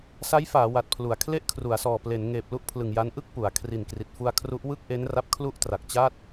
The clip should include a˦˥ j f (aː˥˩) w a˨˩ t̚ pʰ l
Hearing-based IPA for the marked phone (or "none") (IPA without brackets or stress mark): aː˩˦